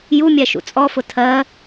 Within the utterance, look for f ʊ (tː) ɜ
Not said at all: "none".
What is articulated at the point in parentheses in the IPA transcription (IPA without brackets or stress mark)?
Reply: tʰ